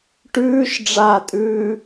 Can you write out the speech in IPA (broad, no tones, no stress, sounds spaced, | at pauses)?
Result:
ʈ ʉː ʃ ɖ͡ʐ aː tʼ ʉː